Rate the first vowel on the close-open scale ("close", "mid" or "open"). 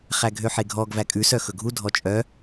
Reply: open